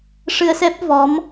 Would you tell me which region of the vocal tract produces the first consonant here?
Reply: retroflex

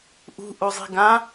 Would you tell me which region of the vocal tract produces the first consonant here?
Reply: throat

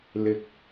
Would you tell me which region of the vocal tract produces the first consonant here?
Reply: tongue tip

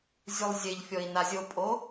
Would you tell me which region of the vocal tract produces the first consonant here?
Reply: tongue tip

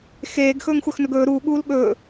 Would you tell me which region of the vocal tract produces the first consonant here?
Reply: velum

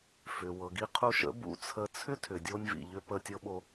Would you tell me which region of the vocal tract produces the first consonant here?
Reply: lips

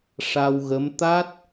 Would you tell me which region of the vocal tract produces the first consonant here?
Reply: retroflex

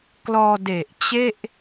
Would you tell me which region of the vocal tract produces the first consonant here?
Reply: velum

